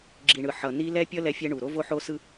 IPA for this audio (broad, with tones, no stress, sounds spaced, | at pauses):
ɡ͡ǁ i˨ ɳ ɯ˨ ħ ʌ˨ n i˦ l ɛ˦ pʲ ʌ˦ l ɛ˦ fʲ ɛ˦ ɳ u˨ ɾ o˦ v o˦ ħ o˦ s ɯ˦